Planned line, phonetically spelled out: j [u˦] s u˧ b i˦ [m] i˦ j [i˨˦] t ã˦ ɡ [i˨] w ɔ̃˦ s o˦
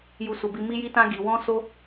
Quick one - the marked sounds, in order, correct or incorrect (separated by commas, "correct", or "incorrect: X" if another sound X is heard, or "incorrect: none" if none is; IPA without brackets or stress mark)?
correct, correct, incorrect: i˦, incorrect: i˧